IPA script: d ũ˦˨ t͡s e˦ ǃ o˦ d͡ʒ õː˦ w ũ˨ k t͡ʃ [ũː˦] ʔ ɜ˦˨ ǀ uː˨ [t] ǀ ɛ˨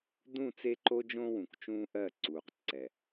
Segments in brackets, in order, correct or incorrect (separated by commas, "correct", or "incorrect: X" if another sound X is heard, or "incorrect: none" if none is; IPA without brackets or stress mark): correct, incorrect: q